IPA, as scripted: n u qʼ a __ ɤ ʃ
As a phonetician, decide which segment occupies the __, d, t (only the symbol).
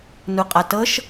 t